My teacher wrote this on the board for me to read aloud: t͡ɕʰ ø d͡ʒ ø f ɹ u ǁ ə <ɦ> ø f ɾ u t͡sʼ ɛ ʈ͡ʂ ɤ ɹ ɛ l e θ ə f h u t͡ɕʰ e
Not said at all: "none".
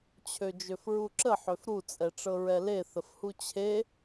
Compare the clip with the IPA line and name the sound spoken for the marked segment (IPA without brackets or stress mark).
ħ